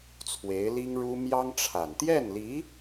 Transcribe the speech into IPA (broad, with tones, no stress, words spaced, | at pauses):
t͡sʰwe˧˥ɪ̯li˥ŋɻu˥ mjɑ˥ŋʈ͡ʂʰa˨˩n t̪jɛ˥˩nli˧˥